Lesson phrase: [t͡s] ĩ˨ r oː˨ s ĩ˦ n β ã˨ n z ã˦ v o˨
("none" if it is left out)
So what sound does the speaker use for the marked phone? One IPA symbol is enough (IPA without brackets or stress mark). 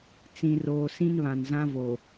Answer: t͡s